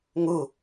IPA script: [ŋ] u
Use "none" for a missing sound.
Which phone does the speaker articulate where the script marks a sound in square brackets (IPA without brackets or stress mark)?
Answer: ŋ